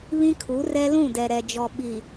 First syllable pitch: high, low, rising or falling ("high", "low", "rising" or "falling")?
high